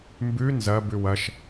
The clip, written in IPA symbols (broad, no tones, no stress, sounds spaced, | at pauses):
m b ʉ n z ɐ b ʉ w ɐ ʃ